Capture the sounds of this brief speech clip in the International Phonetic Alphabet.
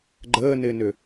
ɡ͡ǃ əː n ɪː n ʏ

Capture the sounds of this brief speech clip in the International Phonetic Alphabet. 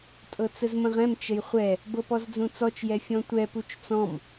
tʼ ɤ t͡s ə z m ə̃ ʁ ɛ̃ m t͡ʃ ə j χʷ ɛ | b ɤ p ɔ z d͡z ũ t͡s ɔ t͡ʃ j ɛ fʲ ɔ̃ tʷ ɛ p u t͡ʃ t͡s ɔ̃ m

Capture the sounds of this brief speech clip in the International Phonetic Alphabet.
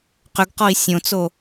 q ʏ ɡ q ɔ i̯ sʲ õ t͡s o

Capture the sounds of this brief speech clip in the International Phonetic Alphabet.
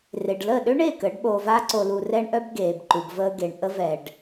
r e˨ ɖ l ə˦˨ ɗ ø˦ ɳ e˦˨ k əː˨˦ ɖ ɓ oː˧ v aː˦ ǀ o˧ l u˧ r ɛ˦ ɳ ʔ œ˦ b ɡ eː˨ b ǃ u˨ b v əː˧ ɡ e˨ ɳ ʔ ə˦ v ɛ˧ ɖ

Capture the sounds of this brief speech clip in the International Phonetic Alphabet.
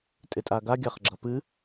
tʼ ɪ tʼ a ɡ a ɡʲ a χ ɡ͡ǁ ʌ p ɨ

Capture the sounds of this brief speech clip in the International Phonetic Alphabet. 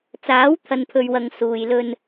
t͡s aː˨˥ w t̪ʰ ɐ˨ n pʰ ɵ˨ ɥ w ɐ˨ ŋ s uː˨ j l ɵ˧ n

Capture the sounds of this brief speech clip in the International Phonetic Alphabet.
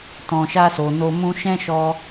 t ɔ̃˨ ʃ a˧ s o˨ n o˧ m ũ˧ ʃ ɛ̃˦ ʃ ɔ˧

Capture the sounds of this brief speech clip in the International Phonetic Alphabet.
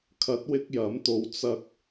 kʰ ɐ˨˥ t̚ w ɪ˧ k̚ j ɐ˨˥ m t̪ o˧ w t͡s ɐ˥ k̚

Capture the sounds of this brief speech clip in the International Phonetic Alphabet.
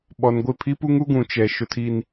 ɓ ɔ˨ n ɡʷ ɪ˦˨ pʰ i˦ p u˦ ŋ u˦ ɡ ũ˨ t͡ʃ ɛ˨ ʃ ʊ˨ tʰ i˨ n

